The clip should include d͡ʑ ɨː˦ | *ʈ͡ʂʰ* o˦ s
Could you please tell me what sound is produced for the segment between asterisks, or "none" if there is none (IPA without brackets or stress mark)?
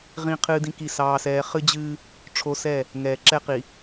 ʈ͡ʂʰ